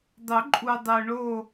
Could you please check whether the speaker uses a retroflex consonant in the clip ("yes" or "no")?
yes